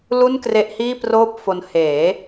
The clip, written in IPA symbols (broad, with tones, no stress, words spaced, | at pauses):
lu˥˩nkre˦˥ʔhiː˥˩ proː˥˩p̚fo˧n heː˩˦